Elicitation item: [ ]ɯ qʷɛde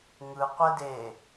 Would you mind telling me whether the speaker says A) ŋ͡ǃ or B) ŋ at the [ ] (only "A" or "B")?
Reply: B